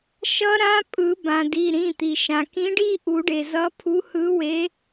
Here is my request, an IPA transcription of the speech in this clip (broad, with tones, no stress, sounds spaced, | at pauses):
ʃ ʌ˦˥ ɾ ã˦˥ pʼ ɯ˨˩˦ b ã˩ d i˩˧˩ ɾ ĩ˩˧˩ t̪ i˩ ʃ ã˩ k ĩ˨˥ ɖ i˥˧ ʔ u˨˩˦ ɖ e˩ z ʌ˨˥ pʰ u˨˥ h ɯ˨˥ w e˨˥